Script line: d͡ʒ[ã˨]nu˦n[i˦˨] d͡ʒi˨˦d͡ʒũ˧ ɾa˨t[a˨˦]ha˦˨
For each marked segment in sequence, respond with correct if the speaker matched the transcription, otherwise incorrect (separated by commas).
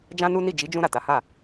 incorrect, correct, correct